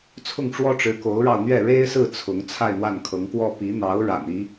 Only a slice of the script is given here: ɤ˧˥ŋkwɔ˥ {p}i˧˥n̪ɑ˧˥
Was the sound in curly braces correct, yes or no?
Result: yes